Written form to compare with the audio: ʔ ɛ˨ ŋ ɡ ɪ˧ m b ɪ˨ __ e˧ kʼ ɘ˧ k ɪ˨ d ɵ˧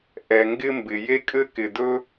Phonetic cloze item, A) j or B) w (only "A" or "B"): A